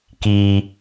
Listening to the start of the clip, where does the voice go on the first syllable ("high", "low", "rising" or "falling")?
low